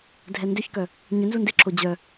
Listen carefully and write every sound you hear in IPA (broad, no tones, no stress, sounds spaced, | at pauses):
dʱ ɛ n d ʏ ç k œ | ɲ ʏ n z u n d ɪ ǁʰ o d͡ʑ œ